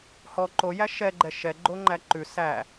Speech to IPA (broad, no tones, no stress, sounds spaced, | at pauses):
h ɔ ǃ o j æ ʃ ɛ ɡ͡ǃ ɛ ʃ ɛ ɡ͡ǃ o ŋ͡ǃ æ ǃ ʉ s æ